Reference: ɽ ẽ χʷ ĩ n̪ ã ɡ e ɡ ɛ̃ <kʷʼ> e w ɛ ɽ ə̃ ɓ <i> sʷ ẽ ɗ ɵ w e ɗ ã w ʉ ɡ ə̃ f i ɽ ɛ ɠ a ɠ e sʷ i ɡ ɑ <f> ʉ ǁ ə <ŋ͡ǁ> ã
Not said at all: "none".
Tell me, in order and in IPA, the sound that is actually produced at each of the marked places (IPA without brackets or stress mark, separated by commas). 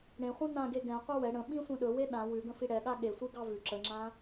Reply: qʷ, ĩ, v, ŋ͡ǁ